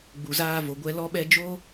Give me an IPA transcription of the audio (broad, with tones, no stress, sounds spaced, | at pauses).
ɡ͡b u˨ z aː˧ v o˨ ɡʷ ɛ˧ l ɔ˦ ɓ ɛ˦ d͡ʒ o˦